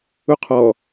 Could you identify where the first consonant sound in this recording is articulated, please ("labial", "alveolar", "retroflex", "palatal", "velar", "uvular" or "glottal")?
uvular